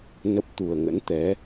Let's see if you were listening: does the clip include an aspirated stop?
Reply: no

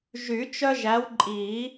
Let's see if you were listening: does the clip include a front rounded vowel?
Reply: yes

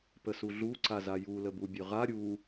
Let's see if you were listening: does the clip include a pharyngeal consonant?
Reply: no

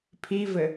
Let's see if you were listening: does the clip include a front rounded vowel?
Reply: no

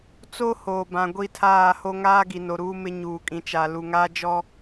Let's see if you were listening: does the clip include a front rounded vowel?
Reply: no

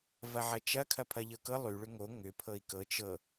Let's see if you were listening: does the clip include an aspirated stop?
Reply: yes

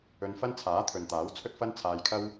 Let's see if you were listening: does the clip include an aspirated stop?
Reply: yes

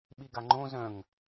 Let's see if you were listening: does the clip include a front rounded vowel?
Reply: yes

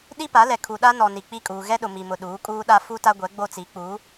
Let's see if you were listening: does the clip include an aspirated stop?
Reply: yes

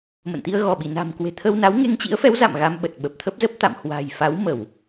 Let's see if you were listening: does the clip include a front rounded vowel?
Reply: no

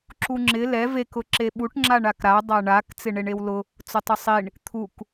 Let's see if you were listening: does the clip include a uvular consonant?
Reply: no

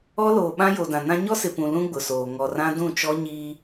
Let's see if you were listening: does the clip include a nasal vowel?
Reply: yes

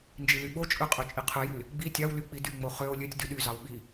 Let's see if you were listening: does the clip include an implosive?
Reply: yes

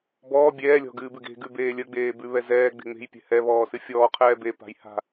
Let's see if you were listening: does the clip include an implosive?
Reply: no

